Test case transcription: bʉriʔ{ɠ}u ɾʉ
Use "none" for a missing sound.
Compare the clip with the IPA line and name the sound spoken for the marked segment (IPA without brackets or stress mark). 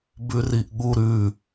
ɠ